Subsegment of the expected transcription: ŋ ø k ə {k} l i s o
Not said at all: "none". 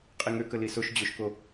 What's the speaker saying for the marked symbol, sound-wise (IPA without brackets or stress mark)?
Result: none